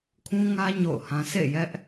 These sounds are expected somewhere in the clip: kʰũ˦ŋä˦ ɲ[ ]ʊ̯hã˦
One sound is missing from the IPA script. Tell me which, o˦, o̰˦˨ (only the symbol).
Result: o̰˦˨